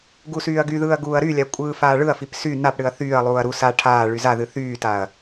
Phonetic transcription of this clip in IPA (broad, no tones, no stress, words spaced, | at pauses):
ɡusyːɐ̯ɡyðɯːɐ̯ ɡuːɐ̯ɾylʲa kʷʼɯːfaːɭɯɐ̯fip sy napɽɨɐ̯ θyːɐ̯lˠuːɐ̯ ɾu sa ʈʰaː ɭyzaðɨ θyːtaɐ̯